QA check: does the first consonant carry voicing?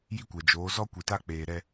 yes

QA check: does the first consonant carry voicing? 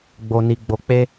yes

